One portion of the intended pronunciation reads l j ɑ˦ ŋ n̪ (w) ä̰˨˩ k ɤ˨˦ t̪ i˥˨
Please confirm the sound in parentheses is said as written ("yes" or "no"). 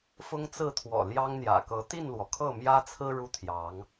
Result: no